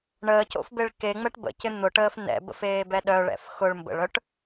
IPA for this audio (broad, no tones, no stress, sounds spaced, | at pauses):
ɳ əː c o̰ f b e ɭ k e ŋ͡m ɛ ʈ b ə̰ c ɪ n̪ ʊ ʈ əː f n ɛ̰ b ə̰ f eː b ɛ ɗ œ ɭ ɛ̰ f x ʊ ɭ m b ə̰ ɭ œ ʈ